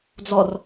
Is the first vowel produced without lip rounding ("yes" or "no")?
no